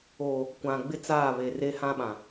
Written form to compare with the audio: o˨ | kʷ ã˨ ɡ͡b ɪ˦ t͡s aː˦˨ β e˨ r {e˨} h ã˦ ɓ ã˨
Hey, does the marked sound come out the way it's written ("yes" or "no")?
no